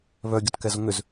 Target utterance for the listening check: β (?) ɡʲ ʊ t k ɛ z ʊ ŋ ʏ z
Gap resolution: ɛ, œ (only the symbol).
œ